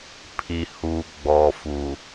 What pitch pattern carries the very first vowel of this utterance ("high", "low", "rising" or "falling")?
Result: low